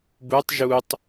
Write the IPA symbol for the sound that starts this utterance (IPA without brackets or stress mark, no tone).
b